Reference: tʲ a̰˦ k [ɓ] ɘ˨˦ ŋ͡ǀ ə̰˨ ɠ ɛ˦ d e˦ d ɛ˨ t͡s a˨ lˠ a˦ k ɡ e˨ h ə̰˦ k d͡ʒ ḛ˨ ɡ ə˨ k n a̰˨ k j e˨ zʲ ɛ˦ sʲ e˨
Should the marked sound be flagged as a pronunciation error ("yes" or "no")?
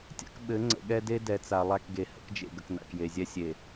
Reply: no